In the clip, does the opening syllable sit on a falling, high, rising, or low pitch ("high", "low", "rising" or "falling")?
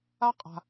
high